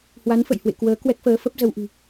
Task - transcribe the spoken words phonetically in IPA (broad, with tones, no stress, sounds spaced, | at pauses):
h w a˨˦ n f ə̰˧˨ j h w ḛ˧˨ k w əː˨˦ k w ɛ˦˥ k̚ f əː˨˦ f ə˦˥ p̚ z ə˧ w ʔ ɨ̤˨˩